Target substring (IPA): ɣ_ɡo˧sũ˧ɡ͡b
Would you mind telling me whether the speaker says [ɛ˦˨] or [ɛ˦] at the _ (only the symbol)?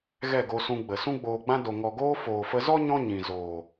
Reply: ɛ˦˨